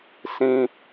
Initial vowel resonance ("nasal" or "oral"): nasal